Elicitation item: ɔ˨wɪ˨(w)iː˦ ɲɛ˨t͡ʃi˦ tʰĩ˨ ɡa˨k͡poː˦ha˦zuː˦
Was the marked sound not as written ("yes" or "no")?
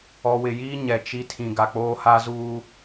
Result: yes